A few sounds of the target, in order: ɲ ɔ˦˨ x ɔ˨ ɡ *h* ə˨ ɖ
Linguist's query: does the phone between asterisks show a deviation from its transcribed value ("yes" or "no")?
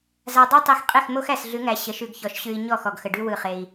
yes